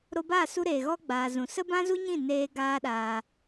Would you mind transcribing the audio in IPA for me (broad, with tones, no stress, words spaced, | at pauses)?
ɾo˧baː˦˨su˧ɾeː˨ ɣɔ˧ ɡ͡baː˨zũ˨ sə˦bã˦zu˦ɲĩ˦˨ neː˦ɡaː˦ɗaː˧